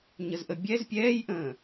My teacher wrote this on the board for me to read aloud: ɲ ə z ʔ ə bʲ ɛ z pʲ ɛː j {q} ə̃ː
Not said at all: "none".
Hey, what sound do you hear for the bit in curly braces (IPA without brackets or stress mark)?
ʔ